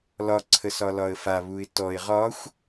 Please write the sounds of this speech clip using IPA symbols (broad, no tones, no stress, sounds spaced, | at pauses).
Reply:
l ɒ ǀʰ ə s ɒ l ɒ ə̯ f a β u ɪ̯ t ɔ ɪ̯ ʁ ɒ xʷ